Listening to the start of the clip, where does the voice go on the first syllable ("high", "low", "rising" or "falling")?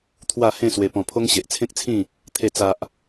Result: falling